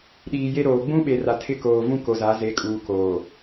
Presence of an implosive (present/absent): present